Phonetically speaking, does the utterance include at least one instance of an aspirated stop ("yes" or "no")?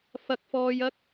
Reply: no